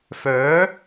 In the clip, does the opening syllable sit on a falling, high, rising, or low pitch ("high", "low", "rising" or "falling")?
rising